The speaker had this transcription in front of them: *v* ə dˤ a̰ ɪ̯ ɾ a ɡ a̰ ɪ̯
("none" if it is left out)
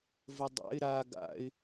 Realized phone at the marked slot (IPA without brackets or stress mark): v